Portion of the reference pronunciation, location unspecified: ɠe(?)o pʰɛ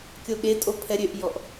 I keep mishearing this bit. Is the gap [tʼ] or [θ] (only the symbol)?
tʼ